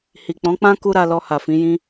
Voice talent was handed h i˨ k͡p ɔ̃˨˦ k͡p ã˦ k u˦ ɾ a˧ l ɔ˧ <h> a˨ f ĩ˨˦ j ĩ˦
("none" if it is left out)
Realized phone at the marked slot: h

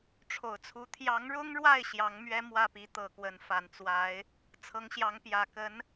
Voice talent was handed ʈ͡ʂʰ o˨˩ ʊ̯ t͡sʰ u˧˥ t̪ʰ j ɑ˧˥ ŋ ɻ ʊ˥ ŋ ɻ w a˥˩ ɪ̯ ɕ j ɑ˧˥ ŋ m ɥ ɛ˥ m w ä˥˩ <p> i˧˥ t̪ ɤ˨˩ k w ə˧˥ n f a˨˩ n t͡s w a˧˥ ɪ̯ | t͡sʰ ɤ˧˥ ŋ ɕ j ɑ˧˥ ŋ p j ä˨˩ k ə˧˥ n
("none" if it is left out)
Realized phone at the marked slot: p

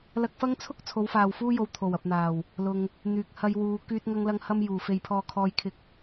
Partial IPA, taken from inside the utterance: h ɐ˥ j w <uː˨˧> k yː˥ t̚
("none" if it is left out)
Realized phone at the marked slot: uː˨˧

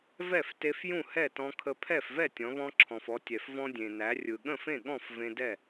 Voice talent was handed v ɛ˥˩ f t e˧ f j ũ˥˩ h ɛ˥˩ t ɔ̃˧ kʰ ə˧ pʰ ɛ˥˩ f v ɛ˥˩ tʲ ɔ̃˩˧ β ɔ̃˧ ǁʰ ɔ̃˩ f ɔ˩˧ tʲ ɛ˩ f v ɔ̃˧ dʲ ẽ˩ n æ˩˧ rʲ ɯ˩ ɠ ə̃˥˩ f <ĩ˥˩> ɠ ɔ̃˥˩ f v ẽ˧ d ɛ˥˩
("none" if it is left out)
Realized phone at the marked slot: ẽ˥˩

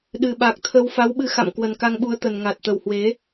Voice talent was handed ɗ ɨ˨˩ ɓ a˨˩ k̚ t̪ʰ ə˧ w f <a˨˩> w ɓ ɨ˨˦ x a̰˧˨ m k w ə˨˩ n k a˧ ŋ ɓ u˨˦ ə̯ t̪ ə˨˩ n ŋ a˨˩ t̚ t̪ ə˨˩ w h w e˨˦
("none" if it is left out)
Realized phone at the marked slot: a˨˦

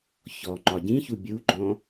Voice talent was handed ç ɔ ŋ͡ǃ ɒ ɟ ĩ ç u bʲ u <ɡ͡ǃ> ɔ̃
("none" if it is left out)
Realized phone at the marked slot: ɡ͡ǃ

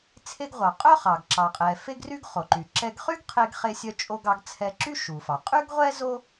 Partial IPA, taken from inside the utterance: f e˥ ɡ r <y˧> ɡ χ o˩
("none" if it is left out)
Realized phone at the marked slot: y˥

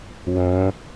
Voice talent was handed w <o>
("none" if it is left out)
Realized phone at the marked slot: õ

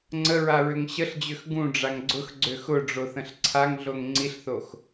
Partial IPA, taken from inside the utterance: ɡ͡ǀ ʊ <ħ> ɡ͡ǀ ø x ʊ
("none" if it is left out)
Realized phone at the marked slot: x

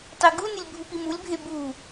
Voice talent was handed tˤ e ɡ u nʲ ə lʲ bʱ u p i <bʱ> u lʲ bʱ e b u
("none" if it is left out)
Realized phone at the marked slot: m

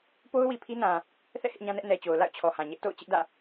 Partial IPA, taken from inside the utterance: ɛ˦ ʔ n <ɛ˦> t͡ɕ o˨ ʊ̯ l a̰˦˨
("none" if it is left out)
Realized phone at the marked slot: ɛ˨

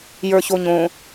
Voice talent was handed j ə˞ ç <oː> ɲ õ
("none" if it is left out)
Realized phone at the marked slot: o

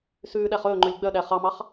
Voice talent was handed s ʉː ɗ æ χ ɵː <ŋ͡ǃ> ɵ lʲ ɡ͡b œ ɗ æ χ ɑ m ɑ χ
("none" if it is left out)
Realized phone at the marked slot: ŋ͡ǃ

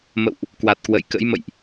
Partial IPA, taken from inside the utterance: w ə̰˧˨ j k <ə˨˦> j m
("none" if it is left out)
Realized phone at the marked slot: ə̰˧˥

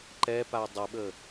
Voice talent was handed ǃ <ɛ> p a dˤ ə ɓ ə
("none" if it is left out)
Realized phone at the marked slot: ɛ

